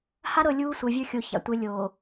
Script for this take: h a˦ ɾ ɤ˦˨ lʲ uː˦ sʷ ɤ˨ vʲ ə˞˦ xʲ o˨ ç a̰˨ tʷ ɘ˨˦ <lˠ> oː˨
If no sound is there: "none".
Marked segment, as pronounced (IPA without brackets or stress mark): lʲ